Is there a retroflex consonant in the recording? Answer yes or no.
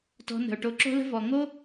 yes